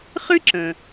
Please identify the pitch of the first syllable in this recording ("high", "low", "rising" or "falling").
high